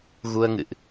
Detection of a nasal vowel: absent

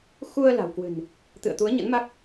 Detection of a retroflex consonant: absent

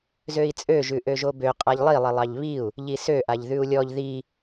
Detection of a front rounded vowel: present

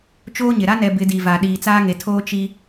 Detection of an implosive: present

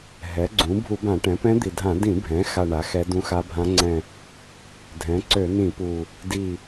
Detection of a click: present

